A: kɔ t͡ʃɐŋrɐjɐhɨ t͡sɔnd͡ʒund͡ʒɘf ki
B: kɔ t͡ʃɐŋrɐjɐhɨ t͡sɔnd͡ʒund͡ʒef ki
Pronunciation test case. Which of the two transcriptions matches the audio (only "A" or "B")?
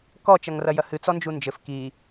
A